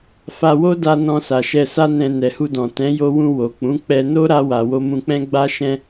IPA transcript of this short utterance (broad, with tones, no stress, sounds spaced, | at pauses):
f a˧ w o˦ d a˧ n ɔ̃˧ s a˨ ʃ ɛ˧ s a˦ n ɛ̃˧ n ɛ˨ h u˧ d ɔ̃˨ t ɛ̃˨˦ j o˧ w ũ˧ w o˨ k͡p ũ˨˦ k͡p ɛ˧ n o˦ ɾ a˧ w a˨ w o˧ m ũ˧ k͡p ɛ̃˦ ɡ͡b a˧ ʃ ɛ̃˧